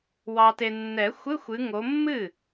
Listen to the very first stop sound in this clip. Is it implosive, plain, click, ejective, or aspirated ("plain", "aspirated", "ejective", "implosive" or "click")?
plain